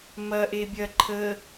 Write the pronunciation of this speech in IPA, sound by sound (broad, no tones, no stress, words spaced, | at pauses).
mɐʔe bʲɐ ǃʰə